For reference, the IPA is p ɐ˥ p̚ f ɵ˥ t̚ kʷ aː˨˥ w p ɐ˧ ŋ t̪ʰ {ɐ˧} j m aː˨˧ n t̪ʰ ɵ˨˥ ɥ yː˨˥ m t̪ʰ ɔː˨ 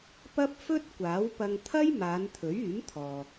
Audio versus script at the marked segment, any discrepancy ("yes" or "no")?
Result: yes